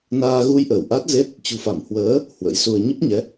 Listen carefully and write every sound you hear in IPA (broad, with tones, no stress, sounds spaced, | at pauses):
n aː˧ ɣ u˧ j ʔ əː˧˩ w ʔ a˦˥ t̚ z e˦˥ t̚ | t͡ɕ ṳ˨˩ f a˧˩ m h w əː˨˦ | h w ə̰˧˥ j s u˧ ə̯ ɲ ə˦˥ p̚ ɲ ɛ˨˦